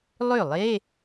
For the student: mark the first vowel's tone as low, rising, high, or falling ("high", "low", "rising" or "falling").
falling